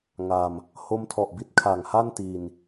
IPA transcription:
ŋ a˧ m | h o˦˥ m tʰ ɔ˨˩ ʔ b i˦˥ t̚ kʰ a˨˩ ŋ h a˥˩ n t iː˧ n

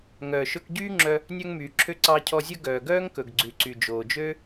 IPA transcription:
ŋ œː˨ ʃ ɵ˧ k ɟ yː˦ ŋ͡ǁ œ˧ | nʲ œ˧ ŋ m yː˨ ǁʰ ø˧ ǀ ɑ˧ cʰ ɔ˧ zʲ ɵ˦ ɡ œː˨ ɡ œː˦ ŋ k ɵ˨ ɡ ɡ͡ǀ ʉ˨ ǀ y˨ d͡ʒ oː˨ d͡ʒ ø˦

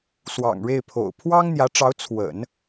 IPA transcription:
s w ɑ̰˨˩ ŋ ɻ e˥˩ ɪ̯ pʰ o̰˨˩ ʊ̯ pʰ w ɑ˥ ŋ n̪ j ä˧˥ ʈ͡ʂ ɑ˧˥ ʊ̯ t͡sʰ w ə̰˨˩˦ n

